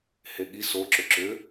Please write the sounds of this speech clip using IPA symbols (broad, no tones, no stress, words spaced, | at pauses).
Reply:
heɠi so ǁʏǁʏ